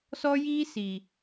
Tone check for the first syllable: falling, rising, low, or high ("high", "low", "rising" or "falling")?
high